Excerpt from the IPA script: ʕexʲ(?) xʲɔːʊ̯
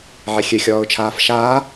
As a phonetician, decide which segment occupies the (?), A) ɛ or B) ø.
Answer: B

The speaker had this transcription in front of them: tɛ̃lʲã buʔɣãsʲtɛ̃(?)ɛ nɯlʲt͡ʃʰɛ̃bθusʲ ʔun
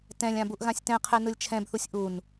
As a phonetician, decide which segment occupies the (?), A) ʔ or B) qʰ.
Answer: B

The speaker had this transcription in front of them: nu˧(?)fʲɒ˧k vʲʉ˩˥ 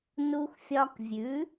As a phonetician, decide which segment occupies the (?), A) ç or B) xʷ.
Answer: B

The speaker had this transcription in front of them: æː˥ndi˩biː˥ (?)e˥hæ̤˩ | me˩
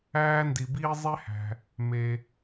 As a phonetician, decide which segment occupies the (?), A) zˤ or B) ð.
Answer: A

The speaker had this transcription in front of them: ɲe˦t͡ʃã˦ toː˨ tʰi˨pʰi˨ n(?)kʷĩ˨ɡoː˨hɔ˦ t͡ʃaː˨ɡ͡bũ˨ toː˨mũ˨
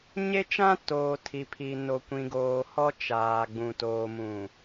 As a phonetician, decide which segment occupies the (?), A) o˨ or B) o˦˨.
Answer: A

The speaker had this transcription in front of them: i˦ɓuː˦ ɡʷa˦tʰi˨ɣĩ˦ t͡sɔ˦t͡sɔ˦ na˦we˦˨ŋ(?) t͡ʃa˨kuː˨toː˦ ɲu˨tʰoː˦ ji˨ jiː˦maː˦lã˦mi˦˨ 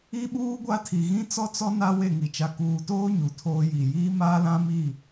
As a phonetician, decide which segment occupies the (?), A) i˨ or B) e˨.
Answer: A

